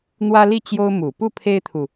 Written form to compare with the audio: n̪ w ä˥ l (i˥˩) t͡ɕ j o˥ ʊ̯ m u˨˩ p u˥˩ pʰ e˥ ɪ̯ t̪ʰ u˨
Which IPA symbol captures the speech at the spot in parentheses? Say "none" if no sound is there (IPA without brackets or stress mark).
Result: i˥˩